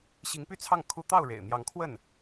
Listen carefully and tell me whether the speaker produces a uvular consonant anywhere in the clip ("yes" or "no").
no